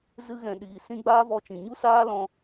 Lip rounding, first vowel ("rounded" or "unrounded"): unrounded